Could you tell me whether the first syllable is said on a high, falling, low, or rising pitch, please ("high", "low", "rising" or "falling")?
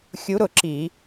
rising